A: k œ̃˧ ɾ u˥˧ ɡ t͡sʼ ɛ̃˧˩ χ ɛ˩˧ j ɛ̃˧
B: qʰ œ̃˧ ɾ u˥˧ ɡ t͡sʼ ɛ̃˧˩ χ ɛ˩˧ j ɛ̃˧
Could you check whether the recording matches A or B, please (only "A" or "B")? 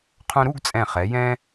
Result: B